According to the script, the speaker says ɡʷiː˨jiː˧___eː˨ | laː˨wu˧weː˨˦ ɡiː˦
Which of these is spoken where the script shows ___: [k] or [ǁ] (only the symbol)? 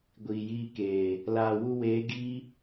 k